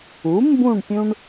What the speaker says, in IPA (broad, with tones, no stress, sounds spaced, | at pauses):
u˩˥ m b ũ˥˨ ɳ pʲ ũ˦ ɳ